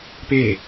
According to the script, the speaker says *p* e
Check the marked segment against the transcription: correct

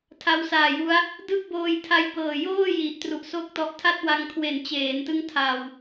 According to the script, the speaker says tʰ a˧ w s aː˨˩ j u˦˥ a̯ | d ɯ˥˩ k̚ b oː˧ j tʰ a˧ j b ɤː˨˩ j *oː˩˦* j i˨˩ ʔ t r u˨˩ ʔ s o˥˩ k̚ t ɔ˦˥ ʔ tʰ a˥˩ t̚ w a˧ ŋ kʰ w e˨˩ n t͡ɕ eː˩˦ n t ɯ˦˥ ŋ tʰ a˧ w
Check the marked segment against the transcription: incorrect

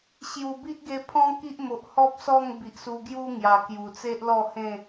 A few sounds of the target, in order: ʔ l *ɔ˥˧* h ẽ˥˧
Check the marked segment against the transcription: correct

